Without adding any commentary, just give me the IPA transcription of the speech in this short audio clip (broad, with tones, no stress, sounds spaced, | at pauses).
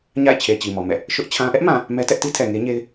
ɲ a̰˦˨ ɪ̯ t͡ɕʰ e˨ t͡ɕ i˨ m ɔ˨ m ɛ̰˦˨ | ʃ ʊ˦ ʔ t͡ɕʰ ã˦ ʔ ɛ˦ ʔ m ã˨ | m ɛ˦ t ɛ˦ ʔ t i˦ tʰ ɛ˨ ŋ e˦ ɲ e˦ ɪ̯